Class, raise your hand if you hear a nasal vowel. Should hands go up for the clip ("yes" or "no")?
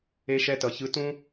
yes